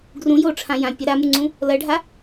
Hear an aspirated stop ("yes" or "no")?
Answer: yes